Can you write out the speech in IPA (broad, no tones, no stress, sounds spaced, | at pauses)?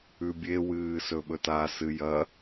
ʉ bʲ e w ɨː s ɵ ɓ ɵ t a s ɨ j ɐ